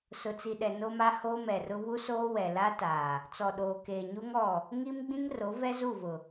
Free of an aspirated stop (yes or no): yes